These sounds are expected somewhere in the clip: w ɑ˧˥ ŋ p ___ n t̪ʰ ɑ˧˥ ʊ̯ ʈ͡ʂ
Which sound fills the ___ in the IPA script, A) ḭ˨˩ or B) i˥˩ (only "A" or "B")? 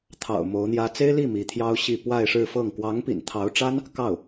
A